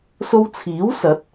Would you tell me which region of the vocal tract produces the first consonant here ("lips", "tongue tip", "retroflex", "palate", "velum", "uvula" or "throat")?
tongue tip